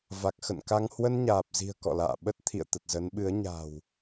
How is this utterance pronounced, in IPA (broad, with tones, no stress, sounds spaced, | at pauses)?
v a˨˩ k̚ x ə̰˧˨ n k a˧ ŋ h w ə˧ n ɲ aː˨˩ p̚ z i̤˨˩ ə̯ k ɔ̰˧˨ l a̰ː˧˨ ɓ ə˦˥ t̚ t̪ʰ ḭ˧˨ ə̯ t̪ ə˨˩ t̚ z ə˨˦ n ɓ ɨ˨˦ ə̯ ɲ a̤˨˩ w